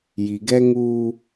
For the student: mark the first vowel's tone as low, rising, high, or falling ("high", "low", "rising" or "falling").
low